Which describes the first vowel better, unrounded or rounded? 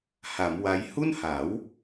unrounded